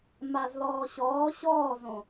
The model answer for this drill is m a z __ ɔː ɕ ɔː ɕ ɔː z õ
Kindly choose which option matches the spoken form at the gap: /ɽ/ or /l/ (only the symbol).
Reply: l